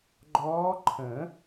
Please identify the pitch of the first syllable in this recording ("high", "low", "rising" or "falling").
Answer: rising